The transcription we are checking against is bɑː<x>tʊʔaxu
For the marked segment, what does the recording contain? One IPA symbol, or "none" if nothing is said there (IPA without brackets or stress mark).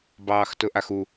x